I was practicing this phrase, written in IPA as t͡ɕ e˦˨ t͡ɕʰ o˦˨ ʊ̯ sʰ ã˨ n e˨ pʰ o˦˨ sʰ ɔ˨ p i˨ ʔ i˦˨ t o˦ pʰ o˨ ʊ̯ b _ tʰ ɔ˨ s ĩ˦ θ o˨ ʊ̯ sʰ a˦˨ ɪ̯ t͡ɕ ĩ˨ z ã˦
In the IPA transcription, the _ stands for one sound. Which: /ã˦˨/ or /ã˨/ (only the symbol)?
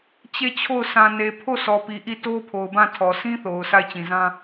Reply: ã˦˨